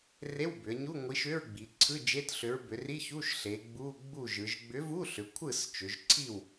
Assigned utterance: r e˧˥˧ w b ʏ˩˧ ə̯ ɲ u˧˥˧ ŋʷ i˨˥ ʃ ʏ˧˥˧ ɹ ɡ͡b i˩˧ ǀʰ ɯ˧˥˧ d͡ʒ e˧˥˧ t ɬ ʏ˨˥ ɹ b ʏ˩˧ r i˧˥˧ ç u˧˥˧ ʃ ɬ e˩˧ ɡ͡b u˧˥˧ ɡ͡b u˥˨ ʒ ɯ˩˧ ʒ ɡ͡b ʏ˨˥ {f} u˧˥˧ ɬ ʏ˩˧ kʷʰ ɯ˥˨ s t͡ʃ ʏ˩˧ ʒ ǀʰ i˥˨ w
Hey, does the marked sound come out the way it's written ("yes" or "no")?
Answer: no